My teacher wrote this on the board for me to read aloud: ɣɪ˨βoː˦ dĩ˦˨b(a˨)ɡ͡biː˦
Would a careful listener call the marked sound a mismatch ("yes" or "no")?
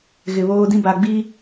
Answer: no